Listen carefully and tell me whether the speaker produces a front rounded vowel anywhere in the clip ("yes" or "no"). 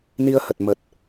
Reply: no